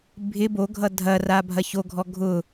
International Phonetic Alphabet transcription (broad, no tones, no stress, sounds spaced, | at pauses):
bʱ ɪ b o ɡʱ ʌ dʱ ɐ r a bʱ ɐ ç o ɡʱ ɔ ɡʱ ʊ